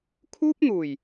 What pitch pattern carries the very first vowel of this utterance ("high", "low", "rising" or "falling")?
high